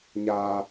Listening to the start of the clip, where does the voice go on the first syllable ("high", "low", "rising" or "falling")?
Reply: high